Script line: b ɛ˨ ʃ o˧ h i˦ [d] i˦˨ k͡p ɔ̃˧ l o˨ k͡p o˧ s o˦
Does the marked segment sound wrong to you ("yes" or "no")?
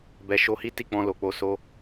yes